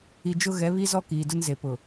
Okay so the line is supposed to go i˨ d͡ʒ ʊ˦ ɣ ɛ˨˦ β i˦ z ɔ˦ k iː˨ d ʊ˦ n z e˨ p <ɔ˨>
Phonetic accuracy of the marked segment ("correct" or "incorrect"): incorrect